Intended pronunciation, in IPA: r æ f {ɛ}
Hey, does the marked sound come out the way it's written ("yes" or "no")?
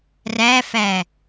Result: no